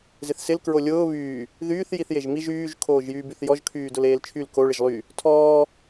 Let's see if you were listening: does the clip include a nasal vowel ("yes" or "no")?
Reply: no